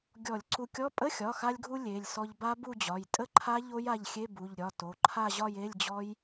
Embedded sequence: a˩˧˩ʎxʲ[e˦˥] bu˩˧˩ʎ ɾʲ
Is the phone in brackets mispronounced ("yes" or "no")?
yes